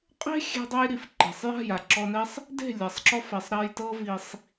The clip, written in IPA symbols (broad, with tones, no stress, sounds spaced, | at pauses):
qʼ e̤˦ xʲ e̤˧ dˤ ɤ˧ j ɾ i˨ f ǃ e̤˨ sˤ j a̤˦˨ j a˨ ǁ ɔ˧ n ɛ˦ sˤ | d e̤˦˨ lʲ a˨ sˤ ǁ ɔ˧ f ɛ˨ sˤ ɾ a˧ j t ɤ˦ v i˧ sˤ